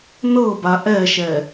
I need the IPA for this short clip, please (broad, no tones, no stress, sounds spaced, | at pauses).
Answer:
n ɤ b a ʔ ɛ ʃ ɛ